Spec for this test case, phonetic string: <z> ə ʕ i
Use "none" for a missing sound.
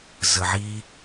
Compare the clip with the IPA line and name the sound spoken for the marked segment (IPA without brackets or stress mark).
z